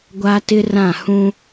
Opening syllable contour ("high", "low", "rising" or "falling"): high